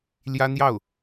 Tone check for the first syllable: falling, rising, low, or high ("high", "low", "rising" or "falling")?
high